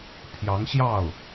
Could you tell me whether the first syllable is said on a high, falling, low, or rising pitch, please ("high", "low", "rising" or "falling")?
rising